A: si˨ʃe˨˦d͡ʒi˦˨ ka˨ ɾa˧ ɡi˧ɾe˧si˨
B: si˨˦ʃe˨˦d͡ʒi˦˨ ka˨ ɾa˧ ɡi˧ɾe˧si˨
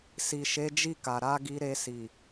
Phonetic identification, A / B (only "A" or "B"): A